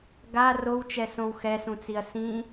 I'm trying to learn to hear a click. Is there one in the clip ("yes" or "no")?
no